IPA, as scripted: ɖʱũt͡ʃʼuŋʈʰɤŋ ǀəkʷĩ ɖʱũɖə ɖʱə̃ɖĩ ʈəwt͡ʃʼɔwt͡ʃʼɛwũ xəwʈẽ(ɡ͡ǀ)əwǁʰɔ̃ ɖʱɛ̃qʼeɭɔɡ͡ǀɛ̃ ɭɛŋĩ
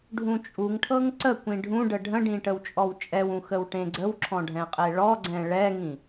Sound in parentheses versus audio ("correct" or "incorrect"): correct